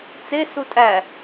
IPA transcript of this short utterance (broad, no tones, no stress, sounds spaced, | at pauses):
t͡s e s u tʼ æ